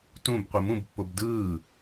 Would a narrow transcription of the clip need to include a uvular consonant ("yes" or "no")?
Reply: yes